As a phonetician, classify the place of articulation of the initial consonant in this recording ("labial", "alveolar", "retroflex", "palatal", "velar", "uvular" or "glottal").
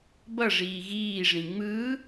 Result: labial